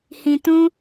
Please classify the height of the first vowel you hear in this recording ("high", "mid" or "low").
high